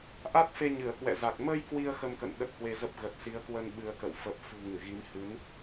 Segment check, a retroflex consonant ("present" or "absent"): absent